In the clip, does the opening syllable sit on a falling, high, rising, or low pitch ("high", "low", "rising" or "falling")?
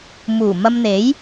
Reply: low